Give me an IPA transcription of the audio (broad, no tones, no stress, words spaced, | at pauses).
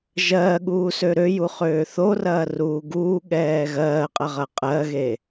ʒɜːɠuːsø ɾøjuχøː θorɐːruː ɡuːɠɛː ɣɜːqʼɐʁɐ qʼɜɣe